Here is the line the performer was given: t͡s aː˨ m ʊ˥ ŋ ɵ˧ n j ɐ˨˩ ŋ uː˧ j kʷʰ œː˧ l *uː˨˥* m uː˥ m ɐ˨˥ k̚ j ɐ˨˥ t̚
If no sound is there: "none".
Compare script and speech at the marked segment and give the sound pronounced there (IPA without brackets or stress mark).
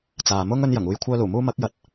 uː˨˩